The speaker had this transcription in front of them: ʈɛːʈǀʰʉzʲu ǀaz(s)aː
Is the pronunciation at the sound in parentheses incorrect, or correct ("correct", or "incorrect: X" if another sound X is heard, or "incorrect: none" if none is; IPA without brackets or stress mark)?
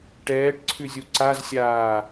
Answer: incorrect: sʲ